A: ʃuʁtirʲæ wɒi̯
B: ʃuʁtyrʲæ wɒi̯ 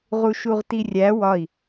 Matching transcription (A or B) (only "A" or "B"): A